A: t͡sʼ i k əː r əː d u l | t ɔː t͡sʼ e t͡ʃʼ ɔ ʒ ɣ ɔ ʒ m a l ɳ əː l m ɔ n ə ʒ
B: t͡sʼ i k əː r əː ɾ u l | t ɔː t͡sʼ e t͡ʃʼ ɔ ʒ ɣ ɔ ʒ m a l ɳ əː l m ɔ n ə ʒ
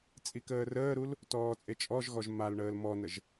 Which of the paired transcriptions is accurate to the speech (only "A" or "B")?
B